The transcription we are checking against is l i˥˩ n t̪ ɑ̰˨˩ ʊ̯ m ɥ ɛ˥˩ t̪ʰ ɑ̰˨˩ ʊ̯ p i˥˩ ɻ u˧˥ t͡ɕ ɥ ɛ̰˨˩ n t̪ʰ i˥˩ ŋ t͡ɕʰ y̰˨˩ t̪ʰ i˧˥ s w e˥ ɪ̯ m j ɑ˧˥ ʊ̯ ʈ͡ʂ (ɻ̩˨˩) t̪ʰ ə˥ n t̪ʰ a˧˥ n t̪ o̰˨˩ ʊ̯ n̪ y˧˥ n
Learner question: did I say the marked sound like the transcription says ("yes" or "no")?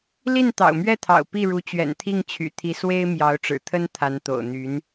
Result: yes